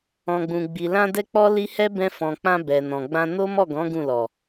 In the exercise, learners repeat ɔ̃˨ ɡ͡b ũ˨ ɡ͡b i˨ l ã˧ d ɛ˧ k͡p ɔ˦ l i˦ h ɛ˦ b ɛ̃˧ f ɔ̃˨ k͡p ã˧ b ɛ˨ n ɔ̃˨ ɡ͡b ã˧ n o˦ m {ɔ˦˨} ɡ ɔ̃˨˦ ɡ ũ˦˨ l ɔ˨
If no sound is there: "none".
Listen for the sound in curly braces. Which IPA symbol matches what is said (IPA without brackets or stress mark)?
ɔ˦˨